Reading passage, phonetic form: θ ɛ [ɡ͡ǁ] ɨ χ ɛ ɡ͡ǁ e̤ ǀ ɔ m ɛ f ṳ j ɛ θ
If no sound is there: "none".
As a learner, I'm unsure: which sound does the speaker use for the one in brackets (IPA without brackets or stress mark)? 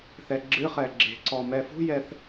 ɡ͡ǁ